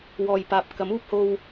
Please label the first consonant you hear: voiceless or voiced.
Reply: voiced